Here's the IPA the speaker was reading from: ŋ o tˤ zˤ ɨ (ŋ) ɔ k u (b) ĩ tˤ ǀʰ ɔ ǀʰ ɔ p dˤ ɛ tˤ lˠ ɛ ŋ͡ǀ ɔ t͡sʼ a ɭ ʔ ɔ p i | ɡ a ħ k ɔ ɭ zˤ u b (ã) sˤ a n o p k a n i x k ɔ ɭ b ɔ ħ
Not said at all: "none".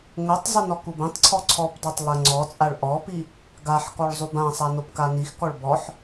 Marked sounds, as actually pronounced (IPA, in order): n, b, ã

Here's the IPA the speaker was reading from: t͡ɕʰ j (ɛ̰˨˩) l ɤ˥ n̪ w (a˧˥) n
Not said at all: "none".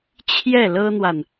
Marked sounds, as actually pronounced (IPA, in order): ɛ˥˩, a˨

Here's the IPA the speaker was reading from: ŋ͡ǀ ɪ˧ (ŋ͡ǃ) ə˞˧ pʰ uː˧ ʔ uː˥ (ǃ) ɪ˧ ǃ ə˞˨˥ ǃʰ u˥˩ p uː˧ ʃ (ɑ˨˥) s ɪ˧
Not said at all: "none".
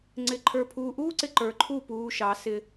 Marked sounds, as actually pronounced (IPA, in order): ǃʰ, ǀ, ɑ˨˥

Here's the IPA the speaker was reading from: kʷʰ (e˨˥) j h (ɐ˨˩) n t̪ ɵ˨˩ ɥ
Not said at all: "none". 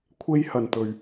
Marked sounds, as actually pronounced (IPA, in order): e˥, ɐ˨˩

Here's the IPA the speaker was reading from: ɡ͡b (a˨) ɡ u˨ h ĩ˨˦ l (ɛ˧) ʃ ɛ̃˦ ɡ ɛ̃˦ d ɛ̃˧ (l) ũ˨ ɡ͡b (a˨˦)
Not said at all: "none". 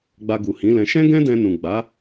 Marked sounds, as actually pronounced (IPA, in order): a˧, ɛ̃˧, n, a˨˦

